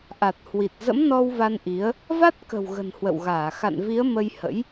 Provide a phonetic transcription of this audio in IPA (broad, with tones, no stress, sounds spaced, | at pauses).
ʔ a˨˩ t̚ h w i˨˩ t̚ z ə̰˧˥ m n ɔ˧ w v a˧ n ʔ i˨˦ ə̯ | v a˦˥ t̚ k ə̤˨˩ w ɣ ə̤˨˩ n h w ə̰˧˨ w ɣ aː˧˩ x a̰˧˨ n v i˨˦ ə̯ m ə˧ j h ə̰˧˥ j